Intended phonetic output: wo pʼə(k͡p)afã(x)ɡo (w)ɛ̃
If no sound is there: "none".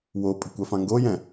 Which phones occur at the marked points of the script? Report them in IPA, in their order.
kʷ, ŋ, j

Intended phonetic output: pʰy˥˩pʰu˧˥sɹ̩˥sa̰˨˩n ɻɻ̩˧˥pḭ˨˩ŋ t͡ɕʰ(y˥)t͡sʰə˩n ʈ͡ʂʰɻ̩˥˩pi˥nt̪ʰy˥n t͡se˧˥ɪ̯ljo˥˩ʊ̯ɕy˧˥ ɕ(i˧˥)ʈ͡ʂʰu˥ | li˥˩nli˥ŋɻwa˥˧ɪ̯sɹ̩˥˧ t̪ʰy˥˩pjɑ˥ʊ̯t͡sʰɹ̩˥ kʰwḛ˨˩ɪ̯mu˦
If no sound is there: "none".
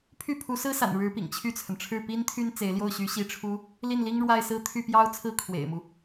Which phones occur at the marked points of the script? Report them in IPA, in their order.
y˥˩, i˥˩

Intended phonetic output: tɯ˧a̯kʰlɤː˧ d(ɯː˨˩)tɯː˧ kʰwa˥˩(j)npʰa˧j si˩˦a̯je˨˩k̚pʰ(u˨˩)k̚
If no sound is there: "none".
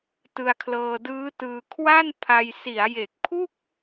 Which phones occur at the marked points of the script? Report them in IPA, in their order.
ɯː˦˥, none, u˥˩

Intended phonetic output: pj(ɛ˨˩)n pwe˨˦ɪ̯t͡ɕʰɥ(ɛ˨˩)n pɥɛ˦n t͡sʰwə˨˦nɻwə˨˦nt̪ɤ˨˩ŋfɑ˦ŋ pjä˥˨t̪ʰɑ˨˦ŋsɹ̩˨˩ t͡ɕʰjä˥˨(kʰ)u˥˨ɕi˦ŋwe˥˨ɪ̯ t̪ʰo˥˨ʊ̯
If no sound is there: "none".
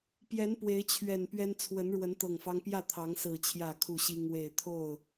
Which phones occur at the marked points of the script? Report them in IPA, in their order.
ɛ˨˦, ɛ˨˩, kʰ

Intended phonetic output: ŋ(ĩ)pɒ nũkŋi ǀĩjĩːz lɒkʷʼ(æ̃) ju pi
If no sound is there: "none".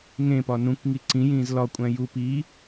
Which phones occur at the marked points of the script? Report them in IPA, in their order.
ẽ, æ̃

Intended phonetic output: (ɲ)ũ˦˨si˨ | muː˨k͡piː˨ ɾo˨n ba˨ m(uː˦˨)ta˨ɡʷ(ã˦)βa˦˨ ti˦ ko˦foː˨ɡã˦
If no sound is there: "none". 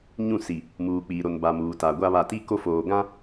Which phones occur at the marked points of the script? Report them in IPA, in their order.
ɲ, uː˨, a˦

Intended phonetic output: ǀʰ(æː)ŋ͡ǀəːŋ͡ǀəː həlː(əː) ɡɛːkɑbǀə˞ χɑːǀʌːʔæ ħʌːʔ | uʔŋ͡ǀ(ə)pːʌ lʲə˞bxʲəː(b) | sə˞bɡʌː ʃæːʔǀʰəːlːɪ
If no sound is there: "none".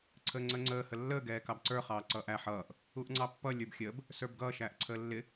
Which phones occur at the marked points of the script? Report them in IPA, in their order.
əː, əː, ɑ, b

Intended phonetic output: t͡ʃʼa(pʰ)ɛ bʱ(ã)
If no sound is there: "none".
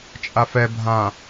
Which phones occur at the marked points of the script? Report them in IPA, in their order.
f, ã

